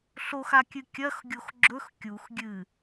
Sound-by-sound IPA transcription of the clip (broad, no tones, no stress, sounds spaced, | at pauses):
ɬ o x a kʲ ɨ kʲ ɐ x ɡʲ o x ɡ͡ǁ ɵ x kʲ u x ɡʲ ɨ